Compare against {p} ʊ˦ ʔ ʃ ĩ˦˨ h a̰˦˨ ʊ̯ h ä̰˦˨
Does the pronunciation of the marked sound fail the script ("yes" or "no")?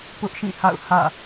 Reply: no